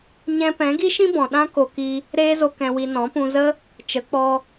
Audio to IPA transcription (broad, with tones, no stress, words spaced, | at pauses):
ɲɛ̃˧ pɛ̃˨˦ɡi˦ʃĩ˦ bɔ̃˨ ɗã˦ ko˧ki˧ | ɾeː˦zo˧ kɛ̃˨wi˨ nɔ̃˨˦pũ˧zə˦ | t͡ʃə˨˦k͡pɔ˧